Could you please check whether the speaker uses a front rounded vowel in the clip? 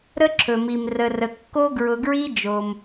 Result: no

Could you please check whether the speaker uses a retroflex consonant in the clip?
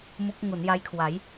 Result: no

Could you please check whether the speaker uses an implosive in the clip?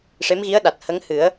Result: yes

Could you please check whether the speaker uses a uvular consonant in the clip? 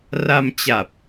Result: no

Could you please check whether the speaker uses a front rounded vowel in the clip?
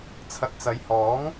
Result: no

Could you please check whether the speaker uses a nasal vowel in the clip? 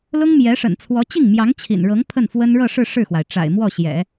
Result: no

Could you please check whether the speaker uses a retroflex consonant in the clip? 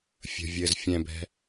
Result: no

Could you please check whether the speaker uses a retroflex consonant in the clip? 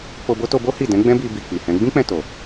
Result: no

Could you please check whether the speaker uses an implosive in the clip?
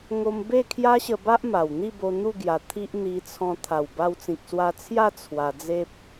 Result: no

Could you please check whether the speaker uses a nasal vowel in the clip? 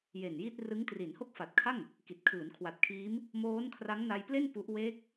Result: no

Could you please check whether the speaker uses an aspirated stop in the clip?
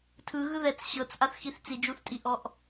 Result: yes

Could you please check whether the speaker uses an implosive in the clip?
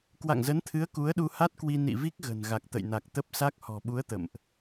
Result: yes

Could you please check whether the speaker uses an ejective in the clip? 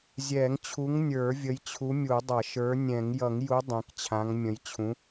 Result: no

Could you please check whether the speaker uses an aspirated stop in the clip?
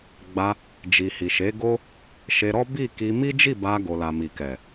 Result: no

